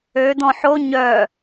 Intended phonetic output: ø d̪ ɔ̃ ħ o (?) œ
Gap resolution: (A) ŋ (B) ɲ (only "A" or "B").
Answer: B